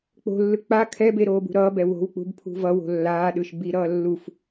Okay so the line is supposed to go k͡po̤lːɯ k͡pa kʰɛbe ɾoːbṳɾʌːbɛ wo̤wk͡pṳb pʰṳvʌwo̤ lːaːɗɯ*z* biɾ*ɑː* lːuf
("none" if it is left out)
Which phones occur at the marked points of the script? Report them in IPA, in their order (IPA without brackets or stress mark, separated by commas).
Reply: ʃ, ʌː